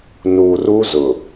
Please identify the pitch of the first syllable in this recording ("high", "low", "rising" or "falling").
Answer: low